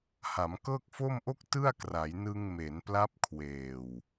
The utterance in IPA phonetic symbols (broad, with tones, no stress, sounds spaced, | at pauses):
h a˩˦ m k ɤː˥˩ k̚ f o˥˩ m ʔ o˥˩ k̚ t ɯ˥˩ a̯ k r a˩˦ j n ɯ˧ ŋ m e˩˦ n p l a˦˥ p̚ kʰ w eː˨˩ w